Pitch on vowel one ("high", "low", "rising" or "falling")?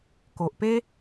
low